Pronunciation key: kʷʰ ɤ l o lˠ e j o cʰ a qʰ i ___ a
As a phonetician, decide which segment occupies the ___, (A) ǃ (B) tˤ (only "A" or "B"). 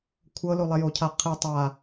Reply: B